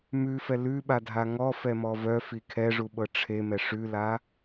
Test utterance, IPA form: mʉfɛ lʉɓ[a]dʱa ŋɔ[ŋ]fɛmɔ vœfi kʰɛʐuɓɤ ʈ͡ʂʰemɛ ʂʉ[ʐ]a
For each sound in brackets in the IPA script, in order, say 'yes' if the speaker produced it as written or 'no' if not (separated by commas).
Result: yes, no, no